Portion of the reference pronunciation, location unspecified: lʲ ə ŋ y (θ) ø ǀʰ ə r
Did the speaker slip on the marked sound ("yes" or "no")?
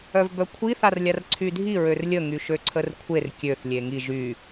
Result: yes